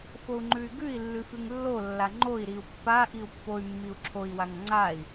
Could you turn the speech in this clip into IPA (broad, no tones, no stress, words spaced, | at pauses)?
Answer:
fou̯ŋ͡ǃʉy̯ɡʉi̯lːʉ fʉŋlːolːa ŋ͡ǃoi̯ɾiu̯ pːaʔiu̯ pːoy̯mːiu̯ ǁʰoi̯waŋ ŋ͡ǀai̯